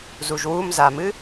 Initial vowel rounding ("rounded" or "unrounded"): rounded